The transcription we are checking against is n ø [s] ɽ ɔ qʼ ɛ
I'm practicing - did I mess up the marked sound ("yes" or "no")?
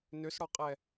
no